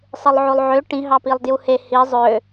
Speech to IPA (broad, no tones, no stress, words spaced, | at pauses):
sˤɯlˠʕolˠʕø ʈĩ ɦɑpilˠdjuhe hi zˤø